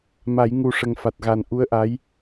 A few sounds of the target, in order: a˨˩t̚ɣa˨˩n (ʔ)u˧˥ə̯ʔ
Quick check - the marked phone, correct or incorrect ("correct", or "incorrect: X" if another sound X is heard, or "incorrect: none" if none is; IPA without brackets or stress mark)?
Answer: correct